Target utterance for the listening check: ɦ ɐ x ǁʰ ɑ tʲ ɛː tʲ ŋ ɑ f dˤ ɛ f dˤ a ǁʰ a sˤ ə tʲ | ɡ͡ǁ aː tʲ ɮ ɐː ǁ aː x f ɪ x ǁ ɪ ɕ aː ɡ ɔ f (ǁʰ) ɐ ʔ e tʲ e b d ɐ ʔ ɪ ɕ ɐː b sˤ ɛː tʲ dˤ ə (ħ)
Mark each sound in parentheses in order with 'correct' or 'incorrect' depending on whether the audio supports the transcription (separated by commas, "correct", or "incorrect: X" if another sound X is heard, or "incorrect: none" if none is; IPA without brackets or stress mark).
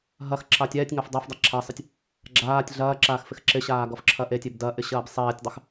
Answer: correct, incorrect: x